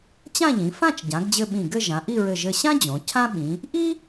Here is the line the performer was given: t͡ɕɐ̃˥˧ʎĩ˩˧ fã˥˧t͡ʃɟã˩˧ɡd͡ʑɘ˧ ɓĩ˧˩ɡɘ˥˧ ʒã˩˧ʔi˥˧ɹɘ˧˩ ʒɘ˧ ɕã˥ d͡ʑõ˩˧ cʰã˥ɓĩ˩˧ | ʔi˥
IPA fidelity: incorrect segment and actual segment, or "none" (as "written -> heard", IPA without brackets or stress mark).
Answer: ɐ̃˥˧ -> ã˥˧